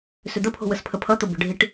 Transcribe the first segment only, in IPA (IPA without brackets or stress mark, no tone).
s